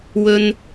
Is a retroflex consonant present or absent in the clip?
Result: absent